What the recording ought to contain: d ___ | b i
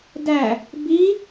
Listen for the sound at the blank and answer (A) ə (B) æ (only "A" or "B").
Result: B